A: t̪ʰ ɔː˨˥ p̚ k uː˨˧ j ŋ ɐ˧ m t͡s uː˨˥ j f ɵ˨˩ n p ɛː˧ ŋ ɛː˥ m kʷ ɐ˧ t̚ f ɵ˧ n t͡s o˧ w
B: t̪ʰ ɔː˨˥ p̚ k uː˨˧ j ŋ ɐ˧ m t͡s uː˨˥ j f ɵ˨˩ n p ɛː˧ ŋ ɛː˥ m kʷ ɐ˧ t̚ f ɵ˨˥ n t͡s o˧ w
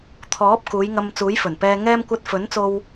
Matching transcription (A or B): B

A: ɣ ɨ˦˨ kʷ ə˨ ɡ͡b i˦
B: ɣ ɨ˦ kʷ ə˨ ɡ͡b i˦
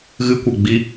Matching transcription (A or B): B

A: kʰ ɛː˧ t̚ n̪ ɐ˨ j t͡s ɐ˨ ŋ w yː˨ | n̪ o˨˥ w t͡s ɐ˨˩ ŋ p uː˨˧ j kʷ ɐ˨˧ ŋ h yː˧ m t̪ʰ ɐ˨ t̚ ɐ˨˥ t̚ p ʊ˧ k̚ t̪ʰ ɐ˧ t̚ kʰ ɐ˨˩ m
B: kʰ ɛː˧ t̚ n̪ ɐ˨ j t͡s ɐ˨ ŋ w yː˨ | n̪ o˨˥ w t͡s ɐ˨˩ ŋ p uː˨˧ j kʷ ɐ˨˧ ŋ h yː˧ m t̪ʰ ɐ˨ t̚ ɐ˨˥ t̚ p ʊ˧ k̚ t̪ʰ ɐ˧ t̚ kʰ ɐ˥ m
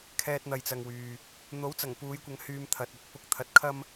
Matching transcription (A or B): B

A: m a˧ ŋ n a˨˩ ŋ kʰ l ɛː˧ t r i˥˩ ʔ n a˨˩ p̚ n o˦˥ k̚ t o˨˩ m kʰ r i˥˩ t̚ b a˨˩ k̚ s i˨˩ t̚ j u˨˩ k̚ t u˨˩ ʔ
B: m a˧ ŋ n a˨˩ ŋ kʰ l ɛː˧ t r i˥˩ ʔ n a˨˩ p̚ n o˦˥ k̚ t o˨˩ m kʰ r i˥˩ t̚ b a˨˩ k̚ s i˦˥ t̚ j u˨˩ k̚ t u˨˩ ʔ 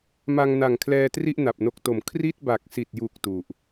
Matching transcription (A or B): A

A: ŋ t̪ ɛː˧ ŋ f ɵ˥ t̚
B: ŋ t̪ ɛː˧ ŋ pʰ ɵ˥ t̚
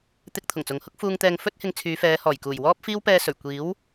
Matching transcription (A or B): A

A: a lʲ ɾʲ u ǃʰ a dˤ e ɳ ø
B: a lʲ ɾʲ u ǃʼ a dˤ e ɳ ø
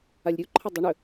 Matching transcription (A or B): A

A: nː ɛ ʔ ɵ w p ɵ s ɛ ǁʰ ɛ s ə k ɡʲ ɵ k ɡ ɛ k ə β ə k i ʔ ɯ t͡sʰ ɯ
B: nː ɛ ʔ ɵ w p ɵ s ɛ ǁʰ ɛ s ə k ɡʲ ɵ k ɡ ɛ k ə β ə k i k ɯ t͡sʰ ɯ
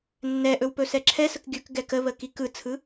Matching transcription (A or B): B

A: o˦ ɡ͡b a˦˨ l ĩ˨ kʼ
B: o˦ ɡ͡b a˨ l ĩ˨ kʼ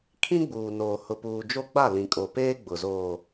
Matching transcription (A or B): A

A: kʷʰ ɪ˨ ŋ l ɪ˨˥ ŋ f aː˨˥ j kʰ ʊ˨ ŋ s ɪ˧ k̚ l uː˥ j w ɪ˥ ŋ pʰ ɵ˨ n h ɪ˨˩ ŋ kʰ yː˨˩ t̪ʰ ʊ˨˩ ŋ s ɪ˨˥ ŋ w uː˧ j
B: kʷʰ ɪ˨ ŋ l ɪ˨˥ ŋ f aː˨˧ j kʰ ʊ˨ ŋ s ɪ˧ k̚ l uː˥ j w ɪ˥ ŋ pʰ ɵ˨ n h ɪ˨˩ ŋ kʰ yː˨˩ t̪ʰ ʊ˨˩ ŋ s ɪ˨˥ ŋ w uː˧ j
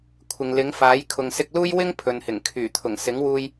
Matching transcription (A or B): A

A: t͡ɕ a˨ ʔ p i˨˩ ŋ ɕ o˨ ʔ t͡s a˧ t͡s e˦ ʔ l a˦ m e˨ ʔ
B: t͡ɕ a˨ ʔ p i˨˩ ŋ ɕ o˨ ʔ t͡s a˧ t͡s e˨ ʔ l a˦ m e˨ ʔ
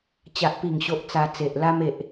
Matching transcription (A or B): B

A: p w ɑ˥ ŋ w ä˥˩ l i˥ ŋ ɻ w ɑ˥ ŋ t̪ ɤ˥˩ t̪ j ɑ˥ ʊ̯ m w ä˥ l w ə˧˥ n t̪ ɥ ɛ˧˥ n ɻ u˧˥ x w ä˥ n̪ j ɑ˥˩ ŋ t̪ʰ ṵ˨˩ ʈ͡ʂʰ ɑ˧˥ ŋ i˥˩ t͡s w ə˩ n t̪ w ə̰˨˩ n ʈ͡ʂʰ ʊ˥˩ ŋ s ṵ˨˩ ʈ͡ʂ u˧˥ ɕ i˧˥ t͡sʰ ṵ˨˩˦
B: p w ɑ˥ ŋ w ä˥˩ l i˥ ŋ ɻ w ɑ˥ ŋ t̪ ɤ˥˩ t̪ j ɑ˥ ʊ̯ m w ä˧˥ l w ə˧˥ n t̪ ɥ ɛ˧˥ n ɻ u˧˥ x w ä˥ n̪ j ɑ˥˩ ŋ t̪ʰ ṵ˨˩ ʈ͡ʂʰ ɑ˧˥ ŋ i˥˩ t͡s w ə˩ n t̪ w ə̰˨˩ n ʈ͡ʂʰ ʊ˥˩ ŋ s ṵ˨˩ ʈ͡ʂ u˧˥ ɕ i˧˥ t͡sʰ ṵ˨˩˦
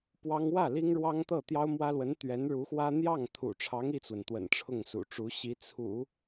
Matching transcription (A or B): A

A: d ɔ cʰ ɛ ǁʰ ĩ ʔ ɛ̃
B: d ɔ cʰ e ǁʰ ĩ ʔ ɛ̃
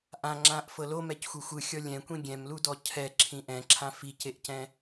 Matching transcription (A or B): A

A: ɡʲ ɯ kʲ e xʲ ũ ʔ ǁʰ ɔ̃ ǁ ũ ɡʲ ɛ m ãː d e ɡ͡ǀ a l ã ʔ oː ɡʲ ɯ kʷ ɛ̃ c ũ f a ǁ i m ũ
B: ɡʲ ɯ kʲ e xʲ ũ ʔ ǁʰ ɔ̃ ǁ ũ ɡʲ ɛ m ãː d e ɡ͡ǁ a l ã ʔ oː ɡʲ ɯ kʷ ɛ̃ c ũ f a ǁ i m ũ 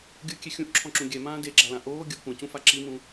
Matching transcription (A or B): B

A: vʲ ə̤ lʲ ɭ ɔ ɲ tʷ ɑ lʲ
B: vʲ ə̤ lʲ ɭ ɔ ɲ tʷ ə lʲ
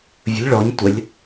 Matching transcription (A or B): B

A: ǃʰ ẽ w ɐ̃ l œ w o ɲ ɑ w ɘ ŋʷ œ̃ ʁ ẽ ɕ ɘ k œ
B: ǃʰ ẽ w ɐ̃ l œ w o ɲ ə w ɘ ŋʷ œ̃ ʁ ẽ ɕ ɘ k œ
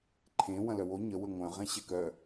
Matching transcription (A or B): B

